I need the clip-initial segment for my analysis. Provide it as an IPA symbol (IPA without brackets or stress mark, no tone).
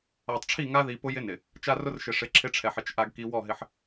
a